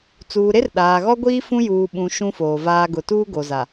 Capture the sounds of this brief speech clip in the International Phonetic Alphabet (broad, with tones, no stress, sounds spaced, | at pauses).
t͡s uː˨ ɾ e˦ r ɗ aː˨ ɣ ɔ˦ ɡʷ iː˦ f ũ˦ j uː˨ ɓ ũ˨ ʃ ũ˦ f oː˨ v aː˦ ɡ ʊ˨ t uː˦ ɡ o˨ z a˨